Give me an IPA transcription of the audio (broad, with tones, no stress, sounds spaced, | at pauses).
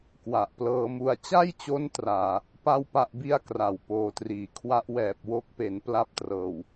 k w a˨˩ ʔ p l ɤː˧ m u˧ a̯ t͡ɕ a˥˩ j t͡ɕ o˦˥ n t r aː˧ | p a˥˩ w p a˥˩ ʔ b i˥˩ a̯ k r a˨˩ w p oː˧ t r iː˨˩ kʰ w a˦˥ ʔ w ɛː˨˩ p̚ w o˦˥ k̚ p e˩˦ n p l a˥˩ p̚ t r ɤː˨˩ w